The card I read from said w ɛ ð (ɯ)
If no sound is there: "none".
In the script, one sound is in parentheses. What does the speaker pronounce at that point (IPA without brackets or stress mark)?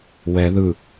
ɯ